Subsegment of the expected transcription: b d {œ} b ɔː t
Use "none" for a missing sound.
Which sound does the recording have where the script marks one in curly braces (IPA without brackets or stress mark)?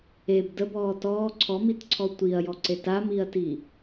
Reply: ə